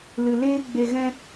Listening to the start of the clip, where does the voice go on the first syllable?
low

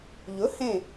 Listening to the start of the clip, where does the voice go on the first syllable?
rising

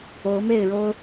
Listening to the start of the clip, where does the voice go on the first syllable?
rising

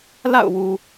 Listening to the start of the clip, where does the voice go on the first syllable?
falling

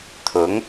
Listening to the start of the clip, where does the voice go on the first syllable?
rising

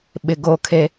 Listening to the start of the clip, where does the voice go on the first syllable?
low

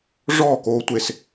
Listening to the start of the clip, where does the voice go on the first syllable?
falling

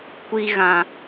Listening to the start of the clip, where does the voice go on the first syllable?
low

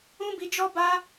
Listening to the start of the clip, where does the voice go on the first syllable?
high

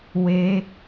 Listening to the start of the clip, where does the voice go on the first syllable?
rising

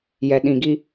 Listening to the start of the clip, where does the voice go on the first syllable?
low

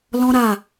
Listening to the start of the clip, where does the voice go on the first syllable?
high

